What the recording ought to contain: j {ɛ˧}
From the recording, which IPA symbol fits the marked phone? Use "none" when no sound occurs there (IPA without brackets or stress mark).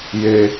e˧